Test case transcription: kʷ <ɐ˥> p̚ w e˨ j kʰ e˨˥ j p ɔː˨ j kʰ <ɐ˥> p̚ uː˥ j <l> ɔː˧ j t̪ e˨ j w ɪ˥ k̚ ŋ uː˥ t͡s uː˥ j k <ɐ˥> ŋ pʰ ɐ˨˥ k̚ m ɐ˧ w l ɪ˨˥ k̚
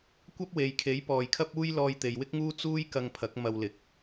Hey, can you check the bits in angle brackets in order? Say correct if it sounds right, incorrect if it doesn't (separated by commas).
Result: correct, correct, correct, incorrect